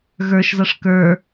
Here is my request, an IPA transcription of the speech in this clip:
ɣə˞ʃzʌʂ kə˞

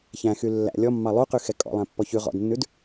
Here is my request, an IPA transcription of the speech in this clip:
çæ̃xy lːæ̰ lʲɔmːɑ lˠuqyxɛ kʼɔ̰lˠæ̃pːɔ çʉ ʁɔ̰dnːʉd

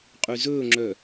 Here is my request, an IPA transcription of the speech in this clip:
qʼyzɵːŋ͡ǁœ

